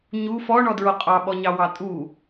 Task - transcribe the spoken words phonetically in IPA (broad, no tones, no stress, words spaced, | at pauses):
ɲu fɔɳɔdɹo qʼɑɓɔɲɑwɑ tʼu